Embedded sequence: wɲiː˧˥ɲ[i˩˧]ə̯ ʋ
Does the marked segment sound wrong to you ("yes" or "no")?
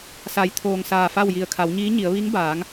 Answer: no